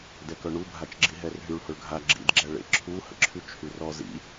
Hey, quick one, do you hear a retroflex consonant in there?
yes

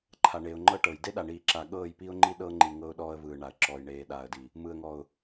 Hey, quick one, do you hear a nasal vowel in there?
no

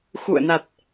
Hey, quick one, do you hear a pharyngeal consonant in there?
no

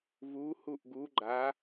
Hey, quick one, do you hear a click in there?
yes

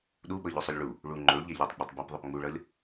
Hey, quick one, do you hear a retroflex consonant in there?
yes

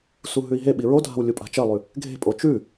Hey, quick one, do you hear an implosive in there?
yes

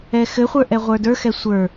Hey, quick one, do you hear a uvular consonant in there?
yes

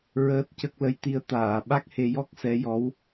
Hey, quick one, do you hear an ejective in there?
no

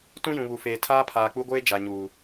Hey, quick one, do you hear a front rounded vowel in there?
no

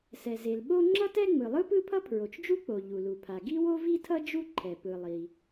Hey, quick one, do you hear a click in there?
yes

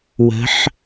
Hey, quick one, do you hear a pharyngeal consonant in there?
yes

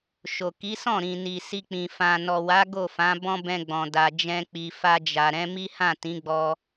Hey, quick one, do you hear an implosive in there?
no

